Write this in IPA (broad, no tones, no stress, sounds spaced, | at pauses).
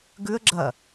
ɡ ʉ ə̯ ɡ͡ǁ ɐ